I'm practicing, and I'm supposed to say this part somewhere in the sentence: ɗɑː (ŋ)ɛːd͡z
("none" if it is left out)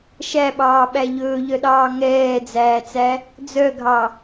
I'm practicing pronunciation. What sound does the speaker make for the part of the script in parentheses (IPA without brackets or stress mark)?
ŋ